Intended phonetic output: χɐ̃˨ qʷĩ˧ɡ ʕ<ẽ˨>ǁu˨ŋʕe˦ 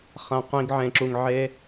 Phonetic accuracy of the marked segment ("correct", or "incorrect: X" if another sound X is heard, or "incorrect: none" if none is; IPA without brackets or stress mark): correct